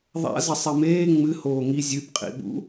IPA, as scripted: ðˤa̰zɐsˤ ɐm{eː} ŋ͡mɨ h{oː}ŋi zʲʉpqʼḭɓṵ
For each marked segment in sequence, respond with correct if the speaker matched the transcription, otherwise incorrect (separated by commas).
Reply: correct, correct